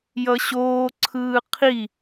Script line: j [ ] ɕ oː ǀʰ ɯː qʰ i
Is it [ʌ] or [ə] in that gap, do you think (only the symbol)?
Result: ʌ